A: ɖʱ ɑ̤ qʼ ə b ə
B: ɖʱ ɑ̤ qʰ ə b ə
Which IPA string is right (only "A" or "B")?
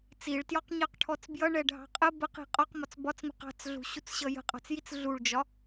A